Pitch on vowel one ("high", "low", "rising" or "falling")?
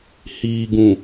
low